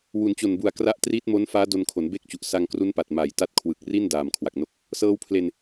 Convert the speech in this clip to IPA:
w u˩˦ n t͡ɕ o˨˩ n b u˨˩ a̯ k r a˦˥ ʔ t r iː˦˥ t̚ m o˦˥ n f aː˦˥ d o˧ n kʰ o˩˦ n b e˥˩ k̚ t͡ɕ u˨˩ ʔ s a˧ ŋ k r u˦˥ n p a˨˩ t̚ m a˨˩ j t a˥˩ t̚ kʰ w ɯ˨˩ k̚ r i˥˩ n d aː˨˩ m kʰ w a˨˩ k̚ n o˥˩ k̚ | s ɤː˦˥ w pʰ l e˧ n

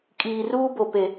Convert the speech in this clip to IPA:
kʼ iː˨ r uː˦ b o˨ p e˨

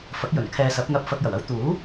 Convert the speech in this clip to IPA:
f ɐ˨˥ k̚ j ɵ˨˩ n kʰ ɛː˨ s ɐ˨˥ p̚ ŋ ɐ˧ p̚ f ɐ˧ k̚ j ɐ˨˩ w ɐ˥ w t̪ uː˨˥

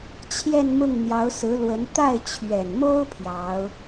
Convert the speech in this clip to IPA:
t͡ɕʰ j ɛ˥˧ n m ʊ˥˩ ŋ n̪ j ɑ˧˥ ʊ̯ s ɹ̩˧˥ l w ə˧˥ n t̪ a˥˩ ɪ̯ t͡ɕʰ ɥ ɛ˨˩ n m o˥ ʊ̯ pʰ j ɑ˧˥ ʊ̯

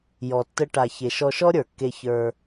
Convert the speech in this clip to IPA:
j ɔ˨ tː ə˧ ʈ a˨ ç e˨ ʃ ɔ˧ ʃ ɔ˦ ɾʲ ə˞˨ kː e˧ ç ə˞˧

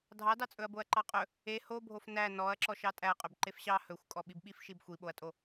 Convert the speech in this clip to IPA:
dʱ ɑ d ɑ t͡sʼ ɵ ɐ̯ b o ɐ̯ ǃ ɑ qʼ ɵ | e h o bʱ o f n æ n ɔ ɐ̯ ǁ ɔ ʃ ɑ tʼ æ ɐ̯ qʼ ø b ǃ e f ɕ ɑ h ɵ xʷ kʼ ɔ ɓ i b ɓ i f ʃ i b xʷ i ɓ o ɐ̯ tʼ o

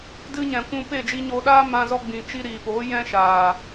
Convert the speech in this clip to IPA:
d ɨ˧ ɲ ɛ̃˨ kʷ ũ˧ p eː˦˨ d͡ʒ i˧ ɲ oː˧ ɗ aː˦ m ã˧ z ɔ˧ ɡ͡b ĩ˨ t͡ʃ i˧ ɾ iː˨ p oː˨˦ j ɛ̃˦ ʃ aː˨

